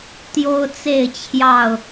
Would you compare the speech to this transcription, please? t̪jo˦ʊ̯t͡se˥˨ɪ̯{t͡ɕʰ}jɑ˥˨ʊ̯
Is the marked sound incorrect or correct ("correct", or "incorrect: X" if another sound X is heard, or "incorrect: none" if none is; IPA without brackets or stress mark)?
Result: correct